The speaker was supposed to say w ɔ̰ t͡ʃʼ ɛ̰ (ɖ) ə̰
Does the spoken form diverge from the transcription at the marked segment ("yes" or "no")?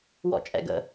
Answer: yes